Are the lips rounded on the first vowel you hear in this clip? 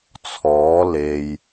yes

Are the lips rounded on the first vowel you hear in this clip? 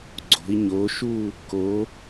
yes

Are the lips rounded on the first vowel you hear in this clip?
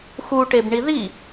yes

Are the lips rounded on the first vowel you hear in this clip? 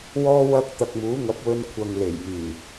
yes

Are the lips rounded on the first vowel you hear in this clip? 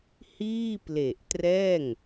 no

